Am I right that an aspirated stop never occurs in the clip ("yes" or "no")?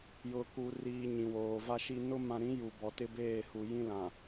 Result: yes